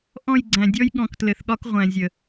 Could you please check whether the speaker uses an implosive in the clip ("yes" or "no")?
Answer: yes